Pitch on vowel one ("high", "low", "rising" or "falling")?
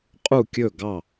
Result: falling